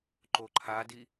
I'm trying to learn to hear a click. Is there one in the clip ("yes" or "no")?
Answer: yes